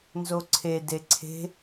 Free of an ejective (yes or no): yes